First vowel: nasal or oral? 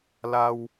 oral